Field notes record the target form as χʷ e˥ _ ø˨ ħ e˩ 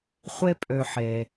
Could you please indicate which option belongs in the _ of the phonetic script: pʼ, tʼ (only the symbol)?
pʼ